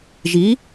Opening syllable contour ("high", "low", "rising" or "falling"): rising